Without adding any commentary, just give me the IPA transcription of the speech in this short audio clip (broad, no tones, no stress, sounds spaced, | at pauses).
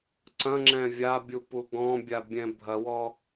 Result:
ǀ ɐ̃ ŋ͡ǁ ɛ̃ vʲ a bʲ u p u ɡ ɔ̃ bʲ a bʲ ɛ̃ bʱ ɐ w ɔ